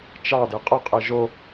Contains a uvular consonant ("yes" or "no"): yes